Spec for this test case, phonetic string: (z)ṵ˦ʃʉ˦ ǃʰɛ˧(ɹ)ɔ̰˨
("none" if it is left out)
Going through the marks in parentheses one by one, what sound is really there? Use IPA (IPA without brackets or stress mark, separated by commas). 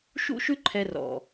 ʃ, r